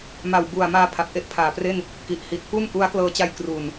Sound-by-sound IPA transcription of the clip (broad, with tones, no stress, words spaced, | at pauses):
ma˨˩wbu˨˩a̯maː˧ pʰa˨˩p̚ʔe˥˩ʔpʰaː˨˩pre˥˩n | ki˨˩ʔhi˨˩t̚ pu˥˩n ʔu˦˥a̯klɤː˧t͡ɕa˧j kru˨˩n